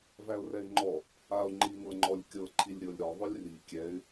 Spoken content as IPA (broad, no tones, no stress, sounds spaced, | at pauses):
v æ ʊ̯ r ɛ ɪ̯ ŋ͡ǃ ɔ | a ʊ̯ ŋ͡ǃ i ŋ ɤ ŋ͡ǃ ɔ lʲ kʲ ɤ ǃʰ i lʲ ɾʲ ɤ lʲ ɾ ɔ ðˤ ʏ lʲ r i kʲ ɛ ɪ̯